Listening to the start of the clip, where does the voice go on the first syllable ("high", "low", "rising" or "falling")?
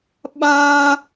high